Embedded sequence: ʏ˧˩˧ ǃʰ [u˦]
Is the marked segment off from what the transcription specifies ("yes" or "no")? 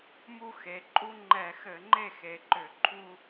no